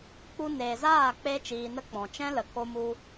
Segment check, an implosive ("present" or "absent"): absent